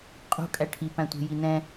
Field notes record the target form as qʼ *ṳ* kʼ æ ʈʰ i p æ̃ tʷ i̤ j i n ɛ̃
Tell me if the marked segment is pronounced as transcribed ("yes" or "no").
yes